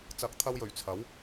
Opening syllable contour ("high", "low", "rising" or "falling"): rising